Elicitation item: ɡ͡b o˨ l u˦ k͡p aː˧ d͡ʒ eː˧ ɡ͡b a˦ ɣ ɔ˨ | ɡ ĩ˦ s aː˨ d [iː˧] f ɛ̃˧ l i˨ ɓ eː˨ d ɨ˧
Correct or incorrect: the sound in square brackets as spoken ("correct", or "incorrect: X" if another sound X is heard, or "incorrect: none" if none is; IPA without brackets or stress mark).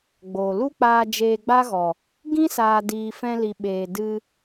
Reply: incorrect: iː˨